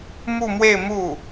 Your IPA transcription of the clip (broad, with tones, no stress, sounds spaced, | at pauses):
m u˥˧ m w e˥˧ ɪ̯ m u˥˩